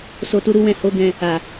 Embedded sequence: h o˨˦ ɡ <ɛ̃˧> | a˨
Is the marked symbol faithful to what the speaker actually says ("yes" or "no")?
yes